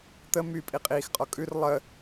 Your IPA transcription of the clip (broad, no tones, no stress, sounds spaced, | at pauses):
t̪ ə m y pʼ i qʼ iː x qʼ ɔ kʼ ʉ r lˠ ə